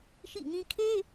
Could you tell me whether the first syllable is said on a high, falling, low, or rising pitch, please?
falling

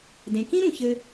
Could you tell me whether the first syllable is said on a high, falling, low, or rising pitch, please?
low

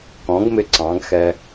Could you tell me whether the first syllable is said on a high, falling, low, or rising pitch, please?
rising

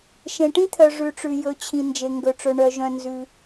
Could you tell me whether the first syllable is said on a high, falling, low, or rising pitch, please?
low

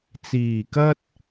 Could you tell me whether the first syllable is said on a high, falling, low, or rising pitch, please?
low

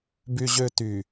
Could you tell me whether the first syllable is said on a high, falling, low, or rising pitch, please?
high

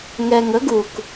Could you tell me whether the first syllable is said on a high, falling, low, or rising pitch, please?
low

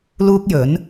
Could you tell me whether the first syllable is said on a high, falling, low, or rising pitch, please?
high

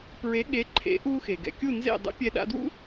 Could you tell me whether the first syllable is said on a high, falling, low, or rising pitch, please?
rising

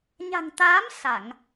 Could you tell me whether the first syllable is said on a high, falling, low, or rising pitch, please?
low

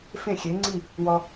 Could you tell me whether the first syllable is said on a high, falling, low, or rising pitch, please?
falling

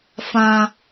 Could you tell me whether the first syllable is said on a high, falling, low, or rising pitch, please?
high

